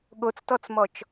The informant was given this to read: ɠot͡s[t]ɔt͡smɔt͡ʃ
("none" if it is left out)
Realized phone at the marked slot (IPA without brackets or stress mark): t